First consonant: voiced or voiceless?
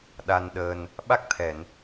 voiced